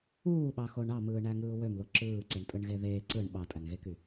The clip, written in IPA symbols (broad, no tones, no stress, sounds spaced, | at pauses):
uː ɓ ɑ x o ɳ ɑ m ɯː ɳ æ ŋ ɯː w ø m l o ǁ ɯː ǀ e ɳ tʼ ɯ ɳ ɣ e ð eː ǀ ɯ ɳ ɓ ɑ tʼ æ ŋ ɣ e k y